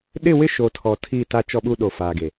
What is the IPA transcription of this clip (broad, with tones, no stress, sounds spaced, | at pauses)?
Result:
ɗ ɪ˦˨ w ɪ˦ ʃ o˨ tʰ ɔ˨ tʰ i˦˨ t a˦ t͡ʃ ɔ˦ ɓ u˦ ɗ o˨ f aː˨ ɡ e˨